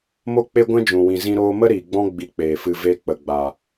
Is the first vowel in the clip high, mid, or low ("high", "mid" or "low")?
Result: mid